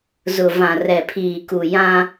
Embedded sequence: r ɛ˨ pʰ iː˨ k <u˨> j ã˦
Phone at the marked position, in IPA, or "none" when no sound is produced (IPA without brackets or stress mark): u˨